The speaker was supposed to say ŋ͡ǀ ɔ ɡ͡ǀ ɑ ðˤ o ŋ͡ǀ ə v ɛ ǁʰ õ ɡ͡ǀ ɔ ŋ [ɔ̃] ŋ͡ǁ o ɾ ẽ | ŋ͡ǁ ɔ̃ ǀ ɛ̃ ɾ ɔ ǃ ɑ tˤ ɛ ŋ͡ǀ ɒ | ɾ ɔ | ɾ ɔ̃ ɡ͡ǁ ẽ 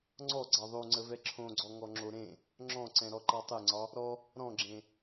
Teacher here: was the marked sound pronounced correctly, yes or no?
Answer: no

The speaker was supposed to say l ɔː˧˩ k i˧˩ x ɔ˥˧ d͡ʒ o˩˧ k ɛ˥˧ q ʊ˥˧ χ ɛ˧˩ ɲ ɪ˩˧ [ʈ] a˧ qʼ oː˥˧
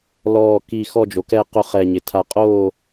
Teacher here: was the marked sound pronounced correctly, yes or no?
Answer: no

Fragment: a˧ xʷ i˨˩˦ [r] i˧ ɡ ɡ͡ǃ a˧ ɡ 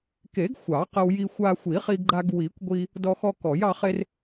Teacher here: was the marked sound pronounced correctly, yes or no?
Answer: no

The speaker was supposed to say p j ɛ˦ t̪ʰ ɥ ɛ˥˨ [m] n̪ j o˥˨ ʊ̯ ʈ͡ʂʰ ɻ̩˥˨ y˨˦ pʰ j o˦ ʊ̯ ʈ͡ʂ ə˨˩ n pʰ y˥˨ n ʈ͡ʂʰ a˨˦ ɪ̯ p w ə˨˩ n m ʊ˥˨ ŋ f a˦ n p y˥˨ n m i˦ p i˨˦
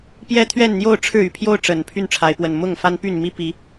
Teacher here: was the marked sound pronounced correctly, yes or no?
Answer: no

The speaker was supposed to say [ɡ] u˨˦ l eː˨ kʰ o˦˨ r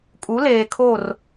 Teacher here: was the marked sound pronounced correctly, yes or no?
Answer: no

